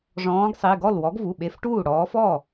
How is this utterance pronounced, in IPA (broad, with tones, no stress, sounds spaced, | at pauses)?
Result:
ʐ ɔ̃ː˨˦ ɡ sˤ i˩˧˩ ɡ ɔ˥˩ l w ɔ˨˦ ɡ v u˩˧˩ ɓ e˨˦ f ʈ uː˥˩ ɽ ɔː˨˦ f ɔ˥˩